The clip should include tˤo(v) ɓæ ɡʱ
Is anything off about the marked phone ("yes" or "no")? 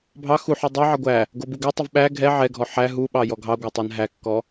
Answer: no